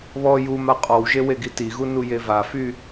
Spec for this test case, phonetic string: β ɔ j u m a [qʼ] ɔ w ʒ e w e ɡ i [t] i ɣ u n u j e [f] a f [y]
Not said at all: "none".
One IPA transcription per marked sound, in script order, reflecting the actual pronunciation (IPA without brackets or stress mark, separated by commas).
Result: qʼ, t, v, y